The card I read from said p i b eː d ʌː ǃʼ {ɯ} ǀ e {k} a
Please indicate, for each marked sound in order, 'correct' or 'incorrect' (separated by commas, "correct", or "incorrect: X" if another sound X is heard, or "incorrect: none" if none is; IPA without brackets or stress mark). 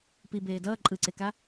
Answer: correct, correct